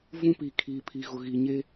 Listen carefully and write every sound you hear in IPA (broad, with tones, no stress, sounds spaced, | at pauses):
v ũ˦ p i˨ kʰ iː˨ pʰ i˨ ɣ ʊ˨ ɣ i˨ ɲ e˦